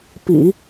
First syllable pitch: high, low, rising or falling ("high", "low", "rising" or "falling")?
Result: low